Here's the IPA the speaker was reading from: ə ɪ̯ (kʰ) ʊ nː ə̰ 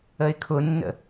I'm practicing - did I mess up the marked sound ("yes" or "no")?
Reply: no